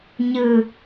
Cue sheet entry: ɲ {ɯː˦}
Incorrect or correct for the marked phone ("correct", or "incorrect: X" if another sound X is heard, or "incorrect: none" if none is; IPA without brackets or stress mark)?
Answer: correct